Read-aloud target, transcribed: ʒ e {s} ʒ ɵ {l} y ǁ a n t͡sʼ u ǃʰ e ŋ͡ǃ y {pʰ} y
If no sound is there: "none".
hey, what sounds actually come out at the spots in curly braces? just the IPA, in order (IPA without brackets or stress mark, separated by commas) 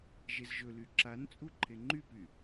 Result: z, l, p